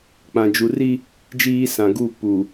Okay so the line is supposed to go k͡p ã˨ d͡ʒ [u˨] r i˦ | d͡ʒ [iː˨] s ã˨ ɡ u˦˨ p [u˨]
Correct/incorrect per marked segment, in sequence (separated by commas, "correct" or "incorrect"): correct, incorrect, correct